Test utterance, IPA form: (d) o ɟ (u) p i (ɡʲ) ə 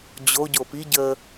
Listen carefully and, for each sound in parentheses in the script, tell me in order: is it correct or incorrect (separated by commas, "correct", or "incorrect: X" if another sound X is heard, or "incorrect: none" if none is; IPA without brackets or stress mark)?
incorrect: d͡ʑ, incorrect: o, incorrect: ɟ